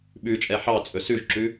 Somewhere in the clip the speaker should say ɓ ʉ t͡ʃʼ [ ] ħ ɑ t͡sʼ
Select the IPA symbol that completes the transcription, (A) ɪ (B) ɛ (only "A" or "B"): B